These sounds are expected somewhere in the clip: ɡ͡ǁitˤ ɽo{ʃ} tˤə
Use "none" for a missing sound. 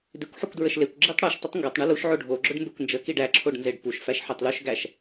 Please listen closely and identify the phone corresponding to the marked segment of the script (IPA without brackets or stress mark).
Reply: ʃ